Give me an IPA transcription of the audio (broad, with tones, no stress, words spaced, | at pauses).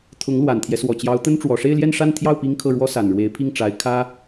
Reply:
t̪ʰʊ˧˥ŋlwa˨˩nt̪ʰjɛ˦ swɔ˨˩t͡ɕjɑ˧˥ʊ̯t̪ə˥n ʈ͡ʂwɔ˨˩ʂe˥˧ɪ̯ ljɛ˥˧nʂa˥˧n t̪ʰjɑ˥˩ʊ̯ pi˥ŋkʰɤ˥˩ ɻwɔ˥sa˨˩nɻwe˧˥ɪ̯pʰi˥˩ŋ ʈ͡ʂa˧˥ɪ̯ kʰä˥